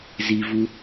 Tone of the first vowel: low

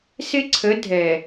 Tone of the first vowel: high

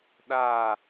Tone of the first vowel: falling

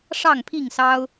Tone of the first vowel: falling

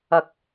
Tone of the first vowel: rising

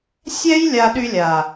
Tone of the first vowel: high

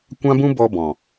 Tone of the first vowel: high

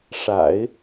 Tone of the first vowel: low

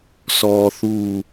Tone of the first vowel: low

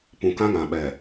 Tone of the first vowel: low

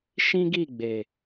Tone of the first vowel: high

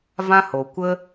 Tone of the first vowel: high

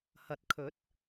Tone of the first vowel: low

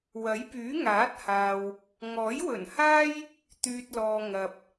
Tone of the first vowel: rising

